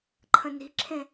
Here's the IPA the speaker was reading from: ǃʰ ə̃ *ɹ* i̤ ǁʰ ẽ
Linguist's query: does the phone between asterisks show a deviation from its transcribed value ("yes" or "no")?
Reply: yes